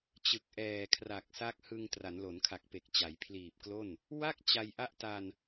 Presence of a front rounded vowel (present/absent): absent